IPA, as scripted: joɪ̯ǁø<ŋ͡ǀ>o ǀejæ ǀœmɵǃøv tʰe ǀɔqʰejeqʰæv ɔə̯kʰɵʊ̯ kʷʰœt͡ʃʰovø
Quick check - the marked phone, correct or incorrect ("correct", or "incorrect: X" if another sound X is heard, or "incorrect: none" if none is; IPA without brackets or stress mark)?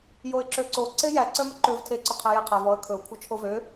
incorrect: ǀ